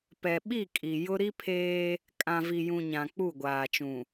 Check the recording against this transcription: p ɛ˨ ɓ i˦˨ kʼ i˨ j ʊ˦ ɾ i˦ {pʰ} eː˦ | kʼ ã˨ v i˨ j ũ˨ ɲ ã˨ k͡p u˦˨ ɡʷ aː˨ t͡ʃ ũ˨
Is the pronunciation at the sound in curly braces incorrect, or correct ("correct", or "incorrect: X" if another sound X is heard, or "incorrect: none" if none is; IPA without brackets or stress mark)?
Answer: correct